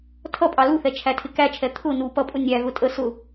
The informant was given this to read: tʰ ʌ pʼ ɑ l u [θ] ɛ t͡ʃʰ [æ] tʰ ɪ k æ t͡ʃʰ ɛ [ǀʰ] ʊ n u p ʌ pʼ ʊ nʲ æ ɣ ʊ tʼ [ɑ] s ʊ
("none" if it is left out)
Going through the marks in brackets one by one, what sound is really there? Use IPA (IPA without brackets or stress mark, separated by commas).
θ, æ, t̪ʰ, ə